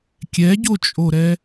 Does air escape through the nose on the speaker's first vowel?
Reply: no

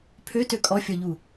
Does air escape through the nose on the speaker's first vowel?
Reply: no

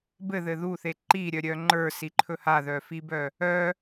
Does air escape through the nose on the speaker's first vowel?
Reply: no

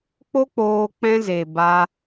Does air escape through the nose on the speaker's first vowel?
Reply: no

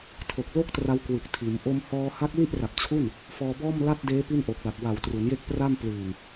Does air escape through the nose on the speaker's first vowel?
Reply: no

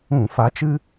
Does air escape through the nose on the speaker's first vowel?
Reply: yes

